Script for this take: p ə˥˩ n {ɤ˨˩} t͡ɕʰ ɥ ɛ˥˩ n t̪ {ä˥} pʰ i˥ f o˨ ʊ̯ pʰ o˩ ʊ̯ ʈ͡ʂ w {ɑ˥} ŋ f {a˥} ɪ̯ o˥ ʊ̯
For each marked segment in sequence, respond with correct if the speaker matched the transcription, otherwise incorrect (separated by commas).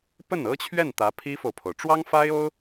incorrect, incorrect, correct, correct